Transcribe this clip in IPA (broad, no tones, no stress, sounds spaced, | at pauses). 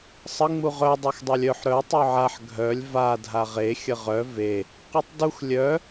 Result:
sˤ ə ŋ͡m u ʁ œ dˤ œ x dˤ œ lʲ œ ħ ɾ œ tˤ œ ʕ a ħ ɡʱ œ lʲ v a dʱ a ʁ e xʲ ə ʁ œ v e | q u tˤ d u x lʲ œ